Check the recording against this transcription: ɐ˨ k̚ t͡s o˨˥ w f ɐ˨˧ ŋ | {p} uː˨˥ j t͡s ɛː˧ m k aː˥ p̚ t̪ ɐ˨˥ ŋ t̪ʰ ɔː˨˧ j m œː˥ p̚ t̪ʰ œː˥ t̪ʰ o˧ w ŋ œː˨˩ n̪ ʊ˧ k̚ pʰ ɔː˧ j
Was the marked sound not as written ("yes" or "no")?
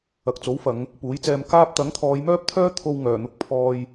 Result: no